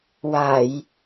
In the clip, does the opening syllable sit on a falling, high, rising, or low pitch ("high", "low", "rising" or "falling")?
low